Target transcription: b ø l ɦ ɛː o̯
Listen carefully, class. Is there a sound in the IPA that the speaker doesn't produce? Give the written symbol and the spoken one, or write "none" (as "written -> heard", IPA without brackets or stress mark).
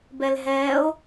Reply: ø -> ɛ